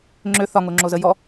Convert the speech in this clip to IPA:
ŋ͡ǁø θɒŋoŋ͡ǁozə jɔ

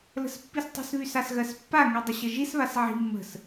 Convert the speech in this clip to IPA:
lə̤spːistˤə̤sβys asɣɜspːaŋy dˤəɕəʒisβas ʕi̤ mːə̤s

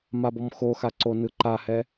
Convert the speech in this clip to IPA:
mabɔmxoxa ǀonɯǃahɛ

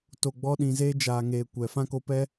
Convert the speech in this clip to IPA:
to˨ ɡ͡bɔ˧ɗĩ˨zeː˧ d͡ʒaː˨ŋeː˨ kʷɛ˨fã˦ko˧pɛ˦

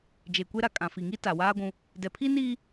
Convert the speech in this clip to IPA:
d͡ʒe˨kʷe˦ɾa˨ kʼã˨fi˨ŋi˦ ta˨waː˦ɡʷũ˦ | dɛ˨pʰi˦niː˦

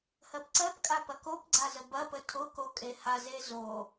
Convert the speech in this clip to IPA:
hɜpǀɜpkʼa pɐkopɡ͡ǀa zəbɐpə tʰʊko kʼehaze zo

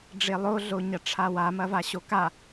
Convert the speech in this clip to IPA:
ɖ͡ʐelˠo ɮoɲɐʈ͡ʂʰawa mɐvaɕoka

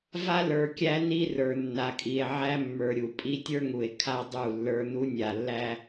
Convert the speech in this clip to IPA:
va˦lə˞˨kʲæ˦ ni˦rə˞˨ nːa˨kʼi˨e̯ʕæ˦ mːə˞˨ɾʲu˨pʼi˦ tʲə˞˦ŋu˨e̯ kʰa˦dˤu˦˨lːə˞˦ nu˦nʲa˨lːæ˦

